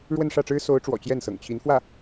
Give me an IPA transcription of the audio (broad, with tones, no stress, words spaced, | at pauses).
ɻwə˥˧nʂä˥˩ʈ͡ʂɻ̩˥ so˧˥ʊ̯ʈ͡ʂwɔ̰˨˩ t͡ɕjɛ˥˩nsɤ̰˨˩ŋ t͡ɕʰi˧˥nfwä˥˩